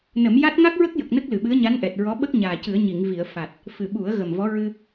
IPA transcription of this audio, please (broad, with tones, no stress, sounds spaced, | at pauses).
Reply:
n ə˨˩˦ m j a˦˥ t̚ ŋ a˦˥ k̚ ɹ ə˦˥ k̚ j ə˨˩ k̚ n ə˦˥ k̚ l ɨ˨˩ ɓ ɨ˧˥ ə̯ ɲ a˧˥ n ʔ ɛ˨˩ t̚ ɹ ɔ˧˥ ɓ ə˦˥ k̚ ɲ aː˨˩ c ɨ˨˩˦ ə̯ ɲ i˨˩˨ ŋ v i˨˩˨ ə̯ f a˨˩ t̚ | f ɨ˨˩ ɓ u˨˩˦ ə̯ ɣ ə˨˩ m v ɔ˧˥ ɹ ɨ˧